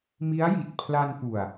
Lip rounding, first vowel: unrounded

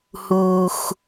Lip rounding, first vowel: rounded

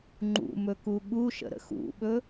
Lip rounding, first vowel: rounded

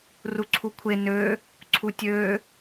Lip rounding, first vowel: rounded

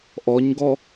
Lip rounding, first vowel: rounded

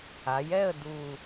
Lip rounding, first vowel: unrounded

